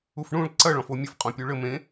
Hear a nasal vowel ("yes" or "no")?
yes